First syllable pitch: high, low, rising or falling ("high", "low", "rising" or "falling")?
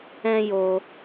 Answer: high